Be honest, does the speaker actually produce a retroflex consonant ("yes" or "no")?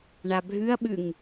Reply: yes